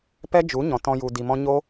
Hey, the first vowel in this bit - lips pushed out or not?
no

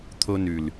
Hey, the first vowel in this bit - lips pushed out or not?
yes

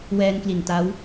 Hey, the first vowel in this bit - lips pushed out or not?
no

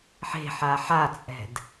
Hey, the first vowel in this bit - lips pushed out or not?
no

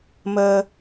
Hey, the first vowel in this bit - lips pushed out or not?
no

